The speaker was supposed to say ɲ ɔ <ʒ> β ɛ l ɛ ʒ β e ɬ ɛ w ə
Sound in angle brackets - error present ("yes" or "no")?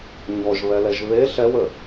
no